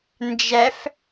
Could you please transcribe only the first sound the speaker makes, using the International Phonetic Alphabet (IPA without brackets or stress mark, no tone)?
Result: n